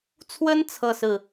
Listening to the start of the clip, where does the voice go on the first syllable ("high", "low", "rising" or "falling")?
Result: high